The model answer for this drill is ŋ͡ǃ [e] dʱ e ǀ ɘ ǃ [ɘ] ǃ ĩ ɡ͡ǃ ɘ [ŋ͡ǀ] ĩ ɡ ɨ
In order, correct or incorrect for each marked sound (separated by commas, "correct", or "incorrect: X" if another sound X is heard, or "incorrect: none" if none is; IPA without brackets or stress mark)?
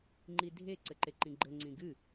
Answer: incorrect: i, incorrect: e, correct